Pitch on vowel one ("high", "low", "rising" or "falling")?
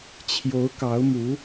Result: rising